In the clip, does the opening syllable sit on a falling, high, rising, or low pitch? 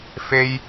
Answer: high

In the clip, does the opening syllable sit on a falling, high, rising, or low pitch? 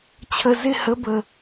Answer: low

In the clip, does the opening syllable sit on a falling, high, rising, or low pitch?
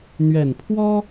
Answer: low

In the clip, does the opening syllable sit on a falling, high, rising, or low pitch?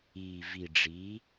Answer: low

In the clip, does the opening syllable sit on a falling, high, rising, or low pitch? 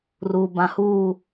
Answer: low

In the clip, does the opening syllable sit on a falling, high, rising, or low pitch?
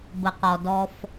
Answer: low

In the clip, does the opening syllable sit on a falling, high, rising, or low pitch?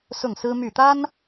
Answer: falling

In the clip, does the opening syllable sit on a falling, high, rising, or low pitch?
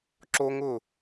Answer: high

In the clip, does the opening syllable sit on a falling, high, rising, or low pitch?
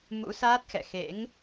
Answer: rising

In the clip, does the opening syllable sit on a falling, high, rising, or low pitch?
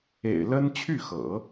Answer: low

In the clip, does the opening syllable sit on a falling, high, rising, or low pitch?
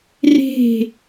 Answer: falling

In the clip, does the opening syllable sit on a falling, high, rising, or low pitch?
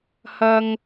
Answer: low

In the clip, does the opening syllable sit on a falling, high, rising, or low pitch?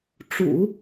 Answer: low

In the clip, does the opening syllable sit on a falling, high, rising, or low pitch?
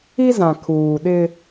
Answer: high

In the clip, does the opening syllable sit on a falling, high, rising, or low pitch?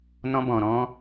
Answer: high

